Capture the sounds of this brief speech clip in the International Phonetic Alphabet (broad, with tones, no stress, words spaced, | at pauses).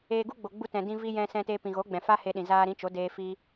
eː˧ɡu˦ɡ͡bo˨ ɡ͡bu˧tɛ̃˨ dĩ˧vi˧ jɛ̃˧sɛ̃˧te˧ pĩ˨ɣo˨˦ɡ͡bɛ̃˨fa˦ he˧ɗĩ˨ zaː˧ɾĩ˨˦t͡ʃo˨˦ deː˧ fi˦